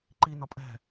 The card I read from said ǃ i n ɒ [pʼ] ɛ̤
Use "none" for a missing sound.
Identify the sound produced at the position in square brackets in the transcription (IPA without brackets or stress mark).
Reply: pʼ